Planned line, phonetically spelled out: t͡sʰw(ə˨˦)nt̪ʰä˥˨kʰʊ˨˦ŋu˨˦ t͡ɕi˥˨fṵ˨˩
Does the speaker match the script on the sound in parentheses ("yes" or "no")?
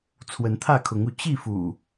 yes